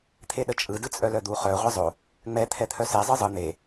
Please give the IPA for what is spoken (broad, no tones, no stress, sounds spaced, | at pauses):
t̪ʰ e ɗ ə t͡ʃʼ ɯ d ɯ t͡sʼ œ l œ d̪ u χ œ ʁʷ e zˤ o | ŋ͡m ɛ t̪ʰ ɛ t̪ʰ œ s e zˤ ɯ zˤ ɯ n̪ e